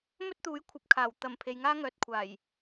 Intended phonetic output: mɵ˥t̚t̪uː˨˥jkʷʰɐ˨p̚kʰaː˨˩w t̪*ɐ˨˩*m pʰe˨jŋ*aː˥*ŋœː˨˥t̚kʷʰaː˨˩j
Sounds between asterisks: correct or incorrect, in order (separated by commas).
correct, correct